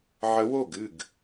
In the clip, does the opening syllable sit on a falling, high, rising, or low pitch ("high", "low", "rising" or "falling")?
rising